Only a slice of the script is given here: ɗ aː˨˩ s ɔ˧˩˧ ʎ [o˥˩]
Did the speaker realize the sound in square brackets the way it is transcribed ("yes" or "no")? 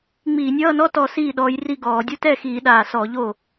yes